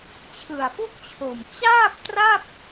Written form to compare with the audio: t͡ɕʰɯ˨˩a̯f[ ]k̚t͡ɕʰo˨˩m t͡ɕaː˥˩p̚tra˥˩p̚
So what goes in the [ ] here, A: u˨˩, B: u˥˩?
B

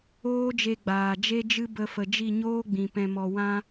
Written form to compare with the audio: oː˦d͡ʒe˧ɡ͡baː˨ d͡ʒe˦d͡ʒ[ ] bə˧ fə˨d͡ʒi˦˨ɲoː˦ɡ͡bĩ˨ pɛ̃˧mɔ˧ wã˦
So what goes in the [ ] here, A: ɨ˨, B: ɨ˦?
B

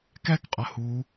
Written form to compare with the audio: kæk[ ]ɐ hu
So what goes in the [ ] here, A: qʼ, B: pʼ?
A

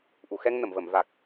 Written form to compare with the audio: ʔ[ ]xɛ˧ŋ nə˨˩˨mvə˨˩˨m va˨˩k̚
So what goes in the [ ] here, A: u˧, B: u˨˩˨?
B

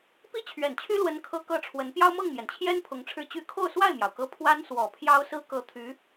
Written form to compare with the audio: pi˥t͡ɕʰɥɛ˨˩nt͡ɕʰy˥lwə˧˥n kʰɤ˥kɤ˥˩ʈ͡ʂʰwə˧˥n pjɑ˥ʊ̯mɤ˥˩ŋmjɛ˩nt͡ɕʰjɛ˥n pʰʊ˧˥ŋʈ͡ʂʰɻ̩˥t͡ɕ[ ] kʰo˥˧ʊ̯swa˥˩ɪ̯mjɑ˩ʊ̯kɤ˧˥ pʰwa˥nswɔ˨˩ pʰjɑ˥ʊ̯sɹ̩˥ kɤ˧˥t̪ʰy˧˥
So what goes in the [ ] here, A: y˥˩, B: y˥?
B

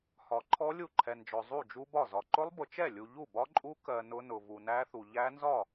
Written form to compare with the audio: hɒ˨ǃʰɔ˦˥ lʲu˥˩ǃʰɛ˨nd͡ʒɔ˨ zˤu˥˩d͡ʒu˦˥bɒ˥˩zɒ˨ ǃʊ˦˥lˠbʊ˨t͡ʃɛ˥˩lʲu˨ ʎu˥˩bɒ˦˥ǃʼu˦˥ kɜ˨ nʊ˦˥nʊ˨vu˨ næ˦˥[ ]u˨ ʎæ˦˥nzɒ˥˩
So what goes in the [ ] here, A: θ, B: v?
A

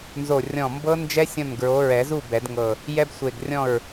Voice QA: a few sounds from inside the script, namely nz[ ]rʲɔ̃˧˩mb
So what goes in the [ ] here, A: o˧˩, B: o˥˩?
A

